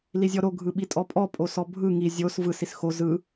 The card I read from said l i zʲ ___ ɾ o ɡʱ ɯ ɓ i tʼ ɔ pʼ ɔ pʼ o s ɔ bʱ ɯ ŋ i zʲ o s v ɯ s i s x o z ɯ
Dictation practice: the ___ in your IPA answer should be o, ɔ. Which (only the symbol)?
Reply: ɔ